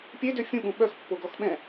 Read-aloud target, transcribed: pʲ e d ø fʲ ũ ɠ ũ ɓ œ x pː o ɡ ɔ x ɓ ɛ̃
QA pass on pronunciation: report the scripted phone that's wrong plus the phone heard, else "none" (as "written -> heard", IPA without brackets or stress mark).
none